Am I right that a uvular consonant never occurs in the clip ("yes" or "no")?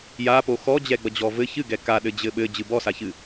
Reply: yes